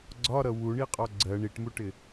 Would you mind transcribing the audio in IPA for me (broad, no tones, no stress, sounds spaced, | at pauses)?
ɡ͡ǀ ɒ ɾ ʌ w u ɳ i qʼ ɒ ɡ͡ǀ ɜ ɳ i ʈ m u ʈ ɪ